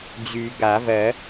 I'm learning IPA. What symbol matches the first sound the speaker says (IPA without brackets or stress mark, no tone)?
d͡ʑ